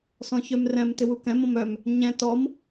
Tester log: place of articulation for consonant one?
alveolar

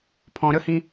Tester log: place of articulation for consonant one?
labial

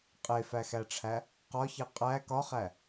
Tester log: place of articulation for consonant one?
uvular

